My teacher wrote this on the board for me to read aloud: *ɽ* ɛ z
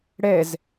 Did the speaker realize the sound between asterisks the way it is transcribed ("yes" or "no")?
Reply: yes